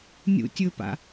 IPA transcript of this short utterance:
nʲṵtʲɵpa̰

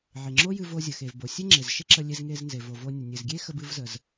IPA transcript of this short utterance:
ʕe˩ŋ͡ǁo˥jɨ˧ vo˧zʲə˩xe˩v bo˩sʲe˥ ŋ͡ǁe˩zʃe˥ǁə˧lʲe˧z ŋe˧znze˩ vo˩vo˧ nʲə˩nʲɨ˩zɡʲe˥ xə˧bɨ˧v zə˩z

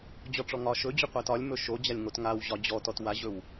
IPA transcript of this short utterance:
d͡ʑɔʈ͡ʂɔŋɒ ʃɵd͡ʑɵqʷæt ɒlʲ mɵʃod͡ʑalʲŋot ŋaw ʑɒd͡ʑɔtɔt waʑɵw

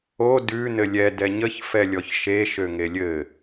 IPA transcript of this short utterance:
o dʉ nɘlʲɛ dɛɲəç fɛlʲɔçʃe ʃøŋelʲɘ

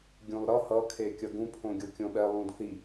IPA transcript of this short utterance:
ɡʲũlˠɾʌ hʌ kʰekʲʌɡũ pʰõɡʲokʲõɓɛ lˠũdθi

